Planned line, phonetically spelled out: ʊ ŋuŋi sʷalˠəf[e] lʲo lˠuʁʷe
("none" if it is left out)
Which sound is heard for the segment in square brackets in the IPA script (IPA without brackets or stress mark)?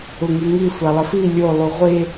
i